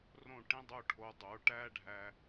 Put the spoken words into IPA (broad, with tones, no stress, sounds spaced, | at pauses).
r õ˧˩ ʈ ĩ˧ dˤ o˧˩ ʈʰ o˩˧ dˤ o˩˧ ʈ æ˥ ɖʱ æ˧